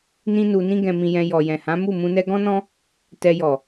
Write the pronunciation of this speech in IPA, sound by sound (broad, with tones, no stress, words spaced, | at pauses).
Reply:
nĩ˦nu˧nĩ˦ ɡɛ̃˧mĩ˧jɛ̃˧ jɔ˨jɛ̃˨hã˨˦ mu˦˨mũ˧nɛ˦ ɡɔ̃˦nɔ̃˦ | tɛ˧jɔ˨